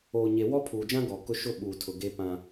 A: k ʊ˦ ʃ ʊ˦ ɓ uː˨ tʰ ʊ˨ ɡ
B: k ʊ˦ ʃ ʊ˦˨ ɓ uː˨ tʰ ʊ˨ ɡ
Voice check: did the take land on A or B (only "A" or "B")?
A